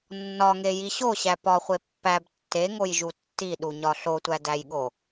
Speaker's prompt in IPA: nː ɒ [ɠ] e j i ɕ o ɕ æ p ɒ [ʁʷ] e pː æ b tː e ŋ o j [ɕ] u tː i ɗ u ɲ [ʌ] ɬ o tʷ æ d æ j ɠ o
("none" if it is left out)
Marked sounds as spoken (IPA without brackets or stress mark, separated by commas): ŋ, χʷ, ʒ, ɒ